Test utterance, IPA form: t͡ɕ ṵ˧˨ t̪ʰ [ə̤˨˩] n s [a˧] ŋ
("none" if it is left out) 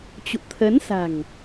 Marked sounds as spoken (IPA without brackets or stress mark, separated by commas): ə˨˦, a̤˨˩